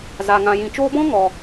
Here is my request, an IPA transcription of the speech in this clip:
z a˨ ŋ ã˨ j ĩ˨ t͡ʃ oː˧ b ɔ̃˦ ŋ ɔ˨

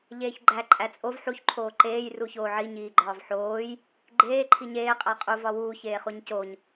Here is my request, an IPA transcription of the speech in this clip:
ʎ eː ç ɡ͡ǃ æ ǃʼ æ t͡sʼ o v ħ u ç ǃʰ oː ǃ eː j r u ç oː ʕ i ɲ iː ɡ͡ǃ ɒː v ħ oː j | ɡ͡ǃ eː ǃʰ i ɲ eː qʼ æ qʼ u v ɒ w uː ç eː χ u ɲ c o ɲ

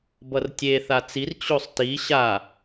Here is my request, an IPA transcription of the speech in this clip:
b ʌ r tʲ e θ a t͡s i r t͡ɕ o sˤ t i ɕ a

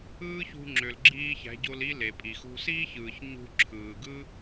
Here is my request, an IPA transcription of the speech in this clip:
ɯː˦ ç ṳ˧ ŋ͡ǁ ø˨ l ɡ͡ǁ iː˧ ç æ̤˨˦ ɟ o˧ l i˧ l e˨ pʼ i˨ x ṳ˧ s iː˦ ç ɯː˨ ç ɲ ṳ˧ ǁʰ ɯː˨ ɡ ɯ˦

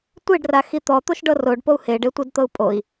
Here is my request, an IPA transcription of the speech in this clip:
tʷ e ɖ r a x i t̪ ɔ t̪ o ʃ ɖ ɤ r o ɖ p o u̯ h e ɖ e tʷ i d t̪ ɤ u̯ pʼ o i̯

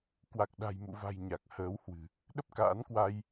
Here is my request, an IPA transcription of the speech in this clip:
k w a˨˩ k̚ ɗ a̤˨˩ j m ṵ˧˨ v a̤˨˩ j ɲ a˨˩ k̚ h əː˨˦ w h w ɨ̤˨˩ | ɗ ə˦˥ p̚ k a̰ː˧˥ n k w a˧ j

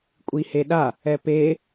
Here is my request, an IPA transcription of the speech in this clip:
kʷʼ i h e ɗ a | ɛ p e

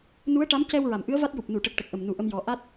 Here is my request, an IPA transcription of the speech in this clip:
n u˧˥ ə̯ ʈ a˧˥ m c ɛ˧ w ɹ a˨˩˨ m ʔ ɨ˧˥ ə̯ v a˦˥ t̚ j u˨˩ p̚ n u˨˩˨ ʈ ə˨˩ k̚ ʈ ə˨˩ k̚ ʔ ə˨˩ m n u˨˩ ʔ ə˧ m j ɔ˨˩ ʔ a˦˥ t̚

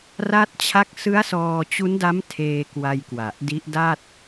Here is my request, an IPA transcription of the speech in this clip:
r a˦˥ t̚ t͡ɕʰ a˦˥ k̚ s ɯ˦˥ a̯ s ɔː˧ t͡ɕ u˦˥ n d a˦˥ m tʰ eː˧ k w a˧ j k w a˨˩ ʔ d i˦˥ ʔ d a˥˩ t̚

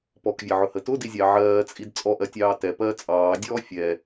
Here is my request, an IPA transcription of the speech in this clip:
p ɔ k vʲ ɛ ʕ ʊ h ə t ʊ d i zʲ ɑ ʕ ɜː t͡sʼ i d t͡sʼ ɔ ʔ ɜ tʲ ɑː t ɛ p ɜː t͡sʼ ɑː dʲ ɔː fʲ ɛ

